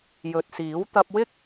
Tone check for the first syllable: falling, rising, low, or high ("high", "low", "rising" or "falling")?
low